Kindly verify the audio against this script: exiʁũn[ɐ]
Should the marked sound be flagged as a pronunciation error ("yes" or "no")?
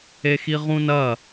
no